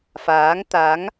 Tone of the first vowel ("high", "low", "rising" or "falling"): rising